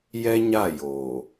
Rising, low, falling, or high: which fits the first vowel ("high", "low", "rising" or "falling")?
high